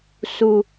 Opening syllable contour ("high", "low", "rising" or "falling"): low